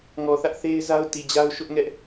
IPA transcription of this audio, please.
ŋ ɔ˨ θ ä˦ ʔ θ e˦ ɪ̯ z a˦ ʊ̯ t i˨ d͡ʑ a˦ ʊ̯ ʃ ʊ˦ ʔ ŋ ɛ˦ ʔ

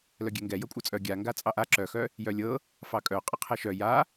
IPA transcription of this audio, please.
l œ ɡʲ ɛ ŋ ɡ ɛ j ɤ kʷʼ œ t͡sʼ œ ɡʲ a ŋ ɡ a t͡sʼ ɑ ʔ a ǁ œ x œ | j œ lʲ ɤ | f ɑ kʼ œ qʼ ɪ qʰ ɛ ʃ œ j a

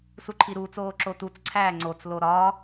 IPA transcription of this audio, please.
s u ǃʰ i ɾ uː t͡s oː ǁ o t u t͡s ǀʰ æː ŋ͡ǀ o t͡s l o ɾ ɒː

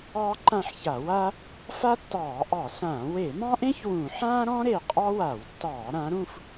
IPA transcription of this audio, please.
ɑː˥ ǃ ã˥˨ ħ ç a˧˩˧ w a˥ | f a˥ tː ɑː˧˩˧ ʔ ɑ˧˩˧ s ãː˧˩˧ w e˧˩˧ m ɑ̃˥ ʔ ẽ˥ ç w ũ˧˩˧ ħ ãː˥ ɾ ɔ̃˥ ɾ e˧˩ qʼ ɑ˥ w a˧˩˧ w tː ɑː˧˩˧ ɾ ã˩˧ ɾ ũ˥˨ f

